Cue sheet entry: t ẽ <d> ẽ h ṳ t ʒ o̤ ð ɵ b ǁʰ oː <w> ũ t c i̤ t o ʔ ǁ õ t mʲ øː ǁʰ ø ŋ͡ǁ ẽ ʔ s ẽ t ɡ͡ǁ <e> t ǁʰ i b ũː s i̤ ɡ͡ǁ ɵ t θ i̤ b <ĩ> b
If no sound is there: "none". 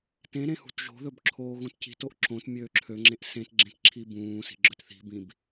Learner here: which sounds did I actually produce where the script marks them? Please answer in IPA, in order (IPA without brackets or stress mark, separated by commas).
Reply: ɾ, ɣ, ẽ, ĩ